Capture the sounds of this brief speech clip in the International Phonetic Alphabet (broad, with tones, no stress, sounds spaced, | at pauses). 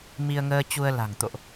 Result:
m i˧ ə̯ ŋ əː˧ t͡ɕ u˧ ə̯ l a̤˨˩ ŋ t̪ o̰˧˨ ʔ